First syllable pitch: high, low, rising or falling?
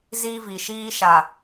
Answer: high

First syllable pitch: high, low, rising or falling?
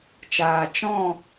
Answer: low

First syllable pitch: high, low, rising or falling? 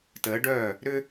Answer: rising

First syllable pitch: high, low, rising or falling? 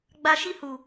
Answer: high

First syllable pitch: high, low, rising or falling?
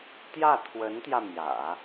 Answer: falling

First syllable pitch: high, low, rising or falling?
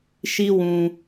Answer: high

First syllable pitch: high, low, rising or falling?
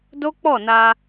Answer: high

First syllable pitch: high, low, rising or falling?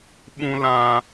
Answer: low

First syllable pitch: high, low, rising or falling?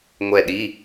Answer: falling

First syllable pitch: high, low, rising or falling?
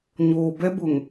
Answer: low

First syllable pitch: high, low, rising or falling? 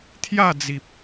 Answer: falling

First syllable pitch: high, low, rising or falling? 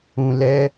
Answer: low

